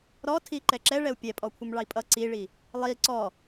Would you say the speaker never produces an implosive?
yes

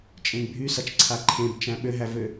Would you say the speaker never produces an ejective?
no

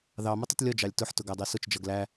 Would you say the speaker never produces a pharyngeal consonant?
no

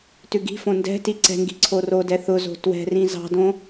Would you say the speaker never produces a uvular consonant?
yes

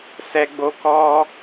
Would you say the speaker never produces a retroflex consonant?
yes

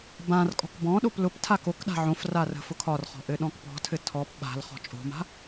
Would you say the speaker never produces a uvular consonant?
no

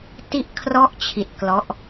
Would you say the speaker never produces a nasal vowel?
yes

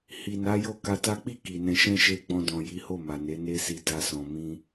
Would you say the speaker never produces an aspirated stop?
yes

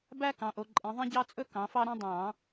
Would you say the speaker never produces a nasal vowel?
no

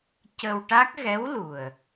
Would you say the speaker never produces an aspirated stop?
yes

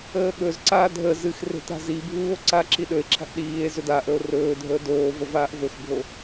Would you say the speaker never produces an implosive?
no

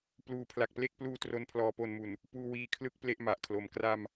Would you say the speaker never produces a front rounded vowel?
yes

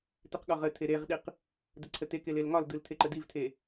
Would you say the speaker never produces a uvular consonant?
no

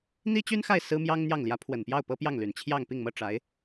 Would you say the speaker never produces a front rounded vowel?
no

